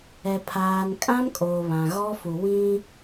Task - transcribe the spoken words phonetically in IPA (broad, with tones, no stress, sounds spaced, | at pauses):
ɛ˨ pʰ aː˨ n kʼ ã˦ m kʼ oː˨ β ã˨ ɣ ɔ˦ f u˨ w ĩ˦